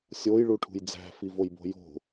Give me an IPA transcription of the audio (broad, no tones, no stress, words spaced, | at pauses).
sʲojɭu ʈʰṳjd͡zæ̤fivoj bo̤jo̤